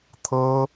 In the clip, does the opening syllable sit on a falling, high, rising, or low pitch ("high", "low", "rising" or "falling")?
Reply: high